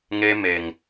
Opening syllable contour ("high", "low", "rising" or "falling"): high